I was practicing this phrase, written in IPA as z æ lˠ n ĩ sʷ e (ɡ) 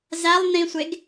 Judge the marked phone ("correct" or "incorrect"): correct